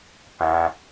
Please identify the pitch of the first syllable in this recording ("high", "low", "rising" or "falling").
low